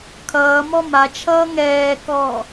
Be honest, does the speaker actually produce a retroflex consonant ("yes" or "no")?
no